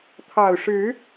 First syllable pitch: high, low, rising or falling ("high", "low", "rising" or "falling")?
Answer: low